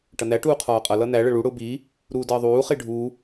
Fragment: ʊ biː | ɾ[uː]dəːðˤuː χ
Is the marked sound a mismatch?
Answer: no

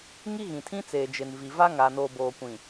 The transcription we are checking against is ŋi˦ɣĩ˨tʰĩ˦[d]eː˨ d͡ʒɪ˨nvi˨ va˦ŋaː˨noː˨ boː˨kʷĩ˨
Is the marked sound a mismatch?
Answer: yes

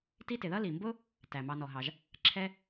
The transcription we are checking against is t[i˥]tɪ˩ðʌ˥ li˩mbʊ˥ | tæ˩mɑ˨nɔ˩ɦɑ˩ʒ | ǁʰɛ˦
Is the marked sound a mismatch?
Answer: yes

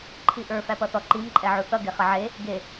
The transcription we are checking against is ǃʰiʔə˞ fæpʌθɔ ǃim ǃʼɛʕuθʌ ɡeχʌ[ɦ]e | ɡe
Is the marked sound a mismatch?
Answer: yes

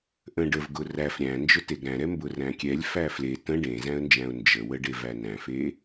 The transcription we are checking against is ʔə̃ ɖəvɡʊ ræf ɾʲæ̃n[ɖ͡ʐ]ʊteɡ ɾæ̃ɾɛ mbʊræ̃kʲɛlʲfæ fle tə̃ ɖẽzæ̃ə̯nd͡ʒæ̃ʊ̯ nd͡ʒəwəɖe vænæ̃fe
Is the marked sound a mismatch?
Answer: yes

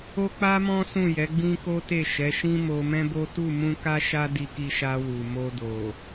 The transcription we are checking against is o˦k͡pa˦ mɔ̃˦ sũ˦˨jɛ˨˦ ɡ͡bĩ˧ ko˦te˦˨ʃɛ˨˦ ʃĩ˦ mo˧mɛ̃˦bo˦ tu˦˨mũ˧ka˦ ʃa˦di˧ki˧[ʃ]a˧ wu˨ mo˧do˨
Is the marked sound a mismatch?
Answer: no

